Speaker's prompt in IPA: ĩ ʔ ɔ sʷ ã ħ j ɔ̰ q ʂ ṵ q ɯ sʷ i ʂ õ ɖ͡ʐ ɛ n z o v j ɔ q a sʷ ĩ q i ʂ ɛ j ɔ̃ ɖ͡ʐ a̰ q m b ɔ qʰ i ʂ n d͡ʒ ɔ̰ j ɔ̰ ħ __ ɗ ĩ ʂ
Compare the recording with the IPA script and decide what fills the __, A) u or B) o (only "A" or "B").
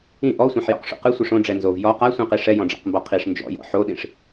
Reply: B